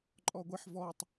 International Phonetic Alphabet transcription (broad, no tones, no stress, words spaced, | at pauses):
ǃʼɔɡʷeħ vɔtˤ